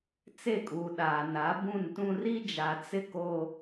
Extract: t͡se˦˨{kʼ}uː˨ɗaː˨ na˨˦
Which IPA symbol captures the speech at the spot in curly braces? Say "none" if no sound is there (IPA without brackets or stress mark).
kʼ